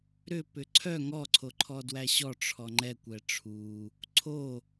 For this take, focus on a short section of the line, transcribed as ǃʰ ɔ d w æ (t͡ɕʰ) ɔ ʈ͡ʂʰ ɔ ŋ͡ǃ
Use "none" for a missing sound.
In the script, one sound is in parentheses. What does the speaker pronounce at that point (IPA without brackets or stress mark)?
ɕ